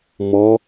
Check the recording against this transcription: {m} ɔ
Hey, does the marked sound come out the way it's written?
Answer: yes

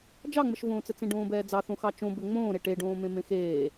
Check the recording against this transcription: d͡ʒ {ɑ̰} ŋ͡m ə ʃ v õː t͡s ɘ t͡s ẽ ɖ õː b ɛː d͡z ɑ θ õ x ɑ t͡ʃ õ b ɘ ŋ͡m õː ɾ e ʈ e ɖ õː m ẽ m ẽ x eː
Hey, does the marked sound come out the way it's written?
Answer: no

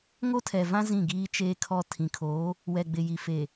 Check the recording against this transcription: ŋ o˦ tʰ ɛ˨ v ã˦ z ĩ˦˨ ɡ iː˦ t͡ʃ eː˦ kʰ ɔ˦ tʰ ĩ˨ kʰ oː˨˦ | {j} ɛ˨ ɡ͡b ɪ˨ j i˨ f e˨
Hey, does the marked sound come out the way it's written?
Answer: no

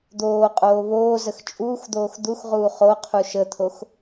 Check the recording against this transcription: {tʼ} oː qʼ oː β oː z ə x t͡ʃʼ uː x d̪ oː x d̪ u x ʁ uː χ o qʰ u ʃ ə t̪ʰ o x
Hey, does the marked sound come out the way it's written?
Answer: no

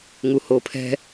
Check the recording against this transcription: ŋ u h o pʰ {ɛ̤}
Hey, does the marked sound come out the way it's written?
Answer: yes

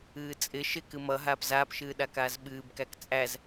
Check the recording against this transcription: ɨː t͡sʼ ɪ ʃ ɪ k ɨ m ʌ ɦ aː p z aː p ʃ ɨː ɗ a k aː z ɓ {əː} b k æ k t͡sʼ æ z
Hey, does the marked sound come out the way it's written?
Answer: no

